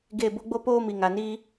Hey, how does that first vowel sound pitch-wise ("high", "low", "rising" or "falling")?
falling